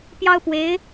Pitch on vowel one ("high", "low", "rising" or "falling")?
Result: high